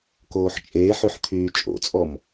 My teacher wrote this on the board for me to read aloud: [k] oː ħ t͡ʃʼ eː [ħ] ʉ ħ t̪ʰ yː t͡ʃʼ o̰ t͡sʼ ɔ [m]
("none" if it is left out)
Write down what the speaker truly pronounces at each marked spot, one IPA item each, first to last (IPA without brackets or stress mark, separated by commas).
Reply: k, ħ, m